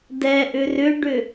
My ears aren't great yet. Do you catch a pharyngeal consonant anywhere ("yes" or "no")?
no